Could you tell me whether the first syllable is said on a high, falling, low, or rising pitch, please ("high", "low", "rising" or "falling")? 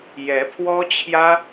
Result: rising